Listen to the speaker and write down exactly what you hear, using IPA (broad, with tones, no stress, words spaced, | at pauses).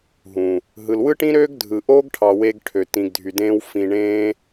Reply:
ɦũ˨ | ɦɯ˨lwɯ˦ʈĩ˦ ɾøː˦ɡdʱɯ˨ ʔoː˦ɡʈʰɑ˨ we˧ɡʈʰø˨ tĩ˨ɡdʱy˨dẽː˧w fĩ˨ ɳẽː˧